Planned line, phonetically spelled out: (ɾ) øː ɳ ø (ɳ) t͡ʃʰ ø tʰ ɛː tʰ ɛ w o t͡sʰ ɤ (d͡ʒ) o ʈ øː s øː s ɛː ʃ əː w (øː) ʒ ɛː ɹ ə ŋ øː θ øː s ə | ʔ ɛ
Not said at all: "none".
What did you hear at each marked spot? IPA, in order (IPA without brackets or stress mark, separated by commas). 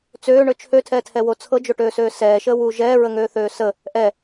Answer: t͡s, none, d͡ʒ, uː